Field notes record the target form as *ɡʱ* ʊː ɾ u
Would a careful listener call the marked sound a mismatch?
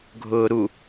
no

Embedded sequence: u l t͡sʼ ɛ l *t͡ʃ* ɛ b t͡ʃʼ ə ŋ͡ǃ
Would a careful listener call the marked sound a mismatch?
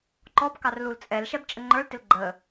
yes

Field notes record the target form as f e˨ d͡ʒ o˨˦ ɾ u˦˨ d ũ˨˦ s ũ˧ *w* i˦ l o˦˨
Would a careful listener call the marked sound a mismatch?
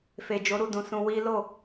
no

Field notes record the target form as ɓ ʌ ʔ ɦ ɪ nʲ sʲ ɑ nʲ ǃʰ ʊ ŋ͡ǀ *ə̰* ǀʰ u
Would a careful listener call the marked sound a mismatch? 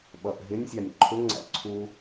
yes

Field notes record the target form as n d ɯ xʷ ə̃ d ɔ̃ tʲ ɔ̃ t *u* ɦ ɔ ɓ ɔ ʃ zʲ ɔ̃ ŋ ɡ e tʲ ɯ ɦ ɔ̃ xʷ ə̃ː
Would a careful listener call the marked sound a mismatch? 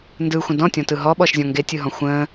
yes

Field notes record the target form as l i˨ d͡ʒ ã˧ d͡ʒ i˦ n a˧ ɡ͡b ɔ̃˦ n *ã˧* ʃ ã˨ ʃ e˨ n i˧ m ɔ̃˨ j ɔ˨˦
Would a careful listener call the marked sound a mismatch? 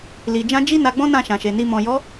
yes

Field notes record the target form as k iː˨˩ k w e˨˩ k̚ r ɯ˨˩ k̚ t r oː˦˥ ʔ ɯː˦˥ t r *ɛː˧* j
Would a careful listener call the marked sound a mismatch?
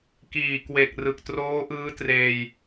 yes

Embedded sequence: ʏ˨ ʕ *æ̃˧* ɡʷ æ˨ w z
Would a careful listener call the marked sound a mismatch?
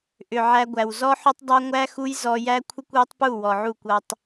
yes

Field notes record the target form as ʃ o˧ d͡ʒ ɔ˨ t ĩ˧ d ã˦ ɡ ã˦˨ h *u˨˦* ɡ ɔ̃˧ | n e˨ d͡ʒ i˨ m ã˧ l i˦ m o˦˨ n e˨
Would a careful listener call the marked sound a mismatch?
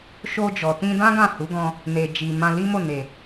no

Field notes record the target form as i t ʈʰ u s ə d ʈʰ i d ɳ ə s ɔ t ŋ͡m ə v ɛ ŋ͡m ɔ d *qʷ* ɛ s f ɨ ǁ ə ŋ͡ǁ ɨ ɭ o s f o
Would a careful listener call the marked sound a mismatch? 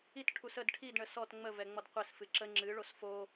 no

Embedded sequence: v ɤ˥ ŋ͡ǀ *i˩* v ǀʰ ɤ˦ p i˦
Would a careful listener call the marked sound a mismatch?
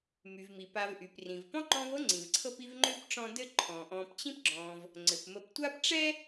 yes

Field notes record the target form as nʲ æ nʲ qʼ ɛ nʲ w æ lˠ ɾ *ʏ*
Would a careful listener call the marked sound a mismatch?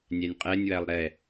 yes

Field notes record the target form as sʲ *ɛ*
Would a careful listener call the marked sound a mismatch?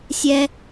no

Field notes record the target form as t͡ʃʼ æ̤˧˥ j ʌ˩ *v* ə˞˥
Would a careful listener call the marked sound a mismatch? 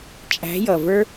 no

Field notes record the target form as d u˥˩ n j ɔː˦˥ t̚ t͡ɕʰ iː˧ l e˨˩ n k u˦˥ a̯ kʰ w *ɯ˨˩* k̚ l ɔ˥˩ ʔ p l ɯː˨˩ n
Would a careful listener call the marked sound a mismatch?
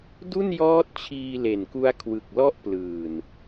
no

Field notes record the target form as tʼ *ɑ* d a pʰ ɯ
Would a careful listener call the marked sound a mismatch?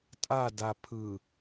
yes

